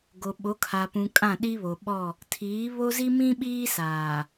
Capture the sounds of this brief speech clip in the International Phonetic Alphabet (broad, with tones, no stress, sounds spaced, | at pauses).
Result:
ɡ o˨ ɓ o˨˦ kʰ a˨ p ũ˨ kʼ ã˦˨ ɗ i˦ β o˨ ɓ ɔ˦˨ | tʰ iː˨˦ β o˦ z i˦ m ĩ˦ ɓ iː˦ s aː˨